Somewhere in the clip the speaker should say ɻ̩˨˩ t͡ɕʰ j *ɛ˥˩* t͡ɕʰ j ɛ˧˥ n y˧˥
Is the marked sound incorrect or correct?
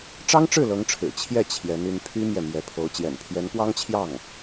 correct